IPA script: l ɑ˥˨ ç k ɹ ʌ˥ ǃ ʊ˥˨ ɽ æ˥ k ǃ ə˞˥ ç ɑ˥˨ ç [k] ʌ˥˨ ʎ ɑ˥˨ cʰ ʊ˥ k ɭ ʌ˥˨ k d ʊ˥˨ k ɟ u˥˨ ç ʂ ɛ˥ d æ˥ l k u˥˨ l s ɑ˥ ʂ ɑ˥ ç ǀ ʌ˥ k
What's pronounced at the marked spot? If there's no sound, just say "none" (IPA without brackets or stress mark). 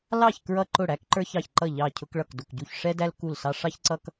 ǃ